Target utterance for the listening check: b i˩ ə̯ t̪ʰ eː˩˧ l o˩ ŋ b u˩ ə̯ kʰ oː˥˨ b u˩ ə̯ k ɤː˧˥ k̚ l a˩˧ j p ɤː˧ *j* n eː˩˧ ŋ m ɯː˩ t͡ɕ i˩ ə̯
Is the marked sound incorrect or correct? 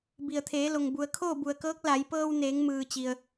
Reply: incorrect